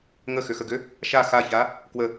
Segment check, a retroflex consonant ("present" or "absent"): absent